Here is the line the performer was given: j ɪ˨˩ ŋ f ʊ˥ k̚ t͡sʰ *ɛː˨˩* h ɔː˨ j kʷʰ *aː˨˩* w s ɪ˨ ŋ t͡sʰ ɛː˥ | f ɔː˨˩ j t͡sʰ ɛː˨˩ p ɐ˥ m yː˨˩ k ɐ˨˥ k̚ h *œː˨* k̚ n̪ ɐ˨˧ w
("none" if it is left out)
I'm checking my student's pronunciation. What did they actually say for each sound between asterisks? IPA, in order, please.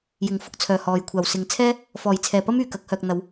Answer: œː˨˩, aː˨˩, œː˨

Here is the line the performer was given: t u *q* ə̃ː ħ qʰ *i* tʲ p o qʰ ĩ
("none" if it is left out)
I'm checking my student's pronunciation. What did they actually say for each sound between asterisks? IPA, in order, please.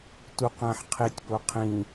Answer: q, i

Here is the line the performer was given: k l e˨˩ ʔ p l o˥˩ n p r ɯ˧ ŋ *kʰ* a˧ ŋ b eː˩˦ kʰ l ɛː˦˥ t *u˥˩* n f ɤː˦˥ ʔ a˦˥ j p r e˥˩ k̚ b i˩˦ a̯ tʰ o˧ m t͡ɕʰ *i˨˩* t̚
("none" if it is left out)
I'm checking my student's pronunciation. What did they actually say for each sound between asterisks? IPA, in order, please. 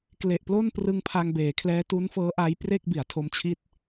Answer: pʰ, u˦˥, i˥˩

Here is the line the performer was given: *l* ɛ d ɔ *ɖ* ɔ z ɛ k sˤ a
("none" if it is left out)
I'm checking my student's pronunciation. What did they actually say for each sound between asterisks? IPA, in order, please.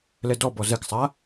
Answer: l, b

